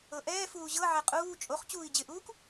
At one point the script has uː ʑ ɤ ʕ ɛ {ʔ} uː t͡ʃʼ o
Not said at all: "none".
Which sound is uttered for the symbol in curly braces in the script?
qʼ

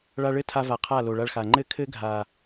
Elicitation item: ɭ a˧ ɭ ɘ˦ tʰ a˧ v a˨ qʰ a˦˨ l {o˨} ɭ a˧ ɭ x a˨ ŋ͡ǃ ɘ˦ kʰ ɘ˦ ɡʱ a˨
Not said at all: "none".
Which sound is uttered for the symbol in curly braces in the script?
o˨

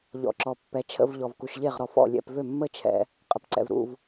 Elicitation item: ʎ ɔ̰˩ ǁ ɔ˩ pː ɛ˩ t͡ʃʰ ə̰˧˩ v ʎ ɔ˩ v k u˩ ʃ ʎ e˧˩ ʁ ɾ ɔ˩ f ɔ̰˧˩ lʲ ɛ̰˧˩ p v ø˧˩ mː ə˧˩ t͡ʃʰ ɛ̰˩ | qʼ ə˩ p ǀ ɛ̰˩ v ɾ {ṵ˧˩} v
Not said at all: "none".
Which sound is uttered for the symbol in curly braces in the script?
ṵ˧˩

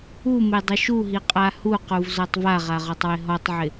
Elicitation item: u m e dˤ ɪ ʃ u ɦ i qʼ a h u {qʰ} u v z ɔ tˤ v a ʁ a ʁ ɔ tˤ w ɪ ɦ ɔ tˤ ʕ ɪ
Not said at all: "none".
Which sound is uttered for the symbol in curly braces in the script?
q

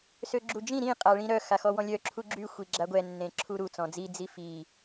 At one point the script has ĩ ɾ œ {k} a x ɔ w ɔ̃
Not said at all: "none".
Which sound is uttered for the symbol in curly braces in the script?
x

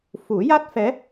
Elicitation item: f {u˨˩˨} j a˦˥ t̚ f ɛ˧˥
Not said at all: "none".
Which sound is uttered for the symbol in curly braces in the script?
u˨˩˦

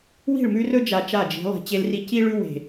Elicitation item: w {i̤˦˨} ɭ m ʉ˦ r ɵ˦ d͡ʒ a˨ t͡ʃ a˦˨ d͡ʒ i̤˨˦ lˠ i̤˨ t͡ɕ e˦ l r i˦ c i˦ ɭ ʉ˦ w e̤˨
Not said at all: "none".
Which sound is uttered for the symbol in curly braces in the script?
i̤˦˨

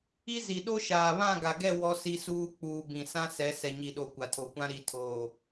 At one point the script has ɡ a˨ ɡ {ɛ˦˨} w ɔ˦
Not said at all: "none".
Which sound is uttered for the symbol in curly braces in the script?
ɛ˦˨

